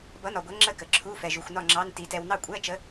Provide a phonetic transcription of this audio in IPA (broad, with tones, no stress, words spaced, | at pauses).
bʌ˨˥nɒ˨ɡʷɛ˨˥ ŋ͡ǁə˥˨kə˨ǁʰu˧˥˧ fɛ˨ʒu˨xʷnɒ˥˨ ŋ͡ǁɑ˧˥˧nti˨˥ tɛ˨wnɑ˥˨ kʷʼɛ˧˥˧t͡ʃə˨˥